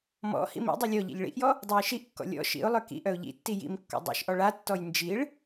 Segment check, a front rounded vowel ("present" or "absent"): present